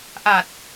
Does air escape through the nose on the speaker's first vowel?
no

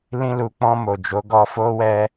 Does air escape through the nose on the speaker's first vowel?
yes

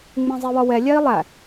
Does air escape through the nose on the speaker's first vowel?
yes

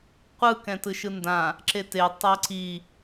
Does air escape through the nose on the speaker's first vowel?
no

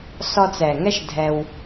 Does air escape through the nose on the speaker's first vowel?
no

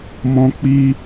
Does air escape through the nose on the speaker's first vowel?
yes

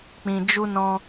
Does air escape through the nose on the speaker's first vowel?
yes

